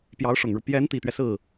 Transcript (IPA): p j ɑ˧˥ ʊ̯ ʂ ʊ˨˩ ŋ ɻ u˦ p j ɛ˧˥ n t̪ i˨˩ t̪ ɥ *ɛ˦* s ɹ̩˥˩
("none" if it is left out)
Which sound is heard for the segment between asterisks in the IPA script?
ɛ˦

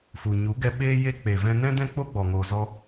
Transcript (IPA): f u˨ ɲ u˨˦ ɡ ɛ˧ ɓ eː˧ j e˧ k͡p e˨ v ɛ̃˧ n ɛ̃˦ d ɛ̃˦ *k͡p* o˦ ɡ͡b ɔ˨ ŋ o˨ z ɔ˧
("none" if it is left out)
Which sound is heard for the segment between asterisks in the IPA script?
k͡p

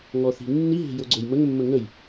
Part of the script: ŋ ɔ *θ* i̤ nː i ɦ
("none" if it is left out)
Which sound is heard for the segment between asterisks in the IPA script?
θ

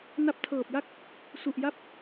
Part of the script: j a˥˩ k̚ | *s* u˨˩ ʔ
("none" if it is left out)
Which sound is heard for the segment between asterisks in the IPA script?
s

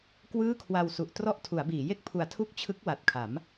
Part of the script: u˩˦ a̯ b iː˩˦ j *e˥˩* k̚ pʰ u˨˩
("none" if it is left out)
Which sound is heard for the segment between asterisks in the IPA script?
e˥˩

